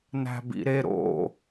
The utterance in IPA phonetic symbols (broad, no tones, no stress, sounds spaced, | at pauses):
n æ̤ b ḭ ɾ e ɾ o̰